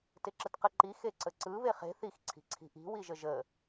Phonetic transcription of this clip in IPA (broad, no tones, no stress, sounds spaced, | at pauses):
t ɪ ǁ ə t q ə ǃ i x e ǀ ə ǀ ɯ β e χ e̤ θ i x ǀʰ i̤ ǀʰ i̤ ʔ i̤ w i ʒ ə ʒ ə